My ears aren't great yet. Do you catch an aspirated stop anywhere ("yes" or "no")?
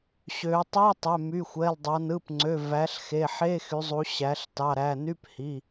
no